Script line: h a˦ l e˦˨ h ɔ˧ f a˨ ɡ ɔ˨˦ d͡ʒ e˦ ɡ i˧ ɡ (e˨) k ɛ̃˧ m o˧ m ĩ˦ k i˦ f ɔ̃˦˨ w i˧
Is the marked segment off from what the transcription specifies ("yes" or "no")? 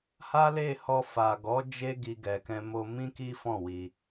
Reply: yes